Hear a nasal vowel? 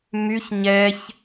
no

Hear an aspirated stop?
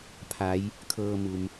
yes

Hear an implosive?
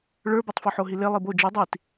no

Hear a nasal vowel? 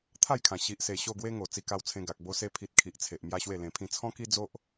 yes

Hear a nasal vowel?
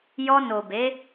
no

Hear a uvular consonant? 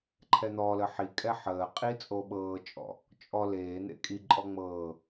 yes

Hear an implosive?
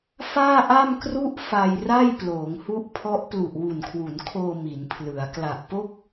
no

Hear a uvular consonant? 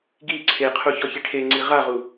yes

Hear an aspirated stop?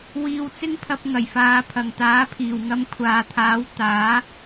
yes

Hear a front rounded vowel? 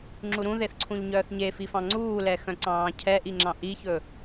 yes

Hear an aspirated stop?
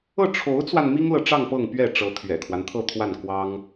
yes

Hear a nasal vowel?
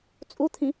yes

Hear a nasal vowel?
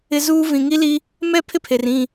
yes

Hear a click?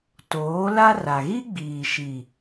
no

